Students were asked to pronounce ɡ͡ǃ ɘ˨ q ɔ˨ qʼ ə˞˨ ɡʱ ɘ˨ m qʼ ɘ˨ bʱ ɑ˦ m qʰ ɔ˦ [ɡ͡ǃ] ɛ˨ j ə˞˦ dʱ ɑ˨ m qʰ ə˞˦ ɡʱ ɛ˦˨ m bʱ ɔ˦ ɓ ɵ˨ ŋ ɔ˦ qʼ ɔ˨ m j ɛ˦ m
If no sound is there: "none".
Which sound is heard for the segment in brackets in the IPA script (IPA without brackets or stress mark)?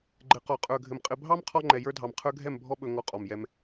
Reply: ŋ͡ǃ